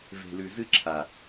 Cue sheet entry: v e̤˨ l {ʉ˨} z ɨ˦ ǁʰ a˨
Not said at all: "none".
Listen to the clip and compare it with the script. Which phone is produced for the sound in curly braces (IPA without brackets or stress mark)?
ʉ˨